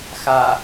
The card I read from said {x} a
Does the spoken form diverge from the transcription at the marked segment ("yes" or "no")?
no